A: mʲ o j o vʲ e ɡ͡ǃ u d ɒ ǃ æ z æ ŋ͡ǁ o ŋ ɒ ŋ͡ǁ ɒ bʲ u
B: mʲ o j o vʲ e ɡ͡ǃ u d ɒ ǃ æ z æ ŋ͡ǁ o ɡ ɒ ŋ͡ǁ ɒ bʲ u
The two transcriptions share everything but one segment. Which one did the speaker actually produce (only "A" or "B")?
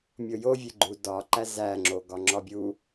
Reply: B